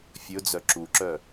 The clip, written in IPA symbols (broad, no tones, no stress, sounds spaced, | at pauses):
fʲ ɵ d͡z œ ǁ u ǁ œ